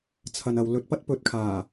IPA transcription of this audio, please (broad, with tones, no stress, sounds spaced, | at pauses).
t͡sʰ ɐ˨ n ɐ˨ w l ɵ˨ t̚ p ɐ˥ t̚ p ɵ˨ t̚ kʰ aː˨˩